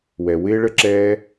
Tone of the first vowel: low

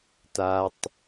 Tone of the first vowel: low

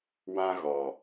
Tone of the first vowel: high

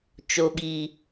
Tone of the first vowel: low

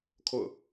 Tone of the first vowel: falling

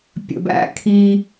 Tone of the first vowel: low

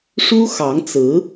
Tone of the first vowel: high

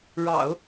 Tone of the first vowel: low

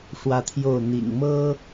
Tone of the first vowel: high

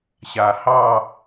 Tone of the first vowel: low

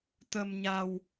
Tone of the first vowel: low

